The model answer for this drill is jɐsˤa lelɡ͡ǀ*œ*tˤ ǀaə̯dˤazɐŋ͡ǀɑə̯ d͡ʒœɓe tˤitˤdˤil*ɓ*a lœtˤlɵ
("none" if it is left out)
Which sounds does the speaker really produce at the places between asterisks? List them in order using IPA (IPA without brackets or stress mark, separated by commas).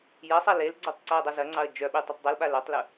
œ, ɓ